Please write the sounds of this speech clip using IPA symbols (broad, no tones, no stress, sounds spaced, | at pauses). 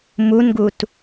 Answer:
m u n ɡ u t